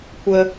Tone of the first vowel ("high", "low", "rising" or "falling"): high